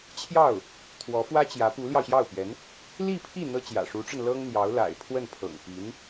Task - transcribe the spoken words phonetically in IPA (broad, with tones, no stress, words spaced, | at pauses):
t͡ɕʰjɑ˥˩ʊ̯ | t̪ʰwɔ˧˥fwä˥t͡ɕjä˧˥ pu˧˥ljɑ˧ʊ̯ɕjɑ˥˩ʊ̯pɥɛ˧˥n | li˥˧pʰi˥˩ n̪ɤ˥t͡ɕjä̰˨˩ ʂu˧˥ʈ͡ʂə˧n lɤ˥ŋn̪jɑ˧˥ʊ̯ la̰˨˩ɪ̯pʰwə˥˩npʰɤ̰˨˩ŋ pi˧˥n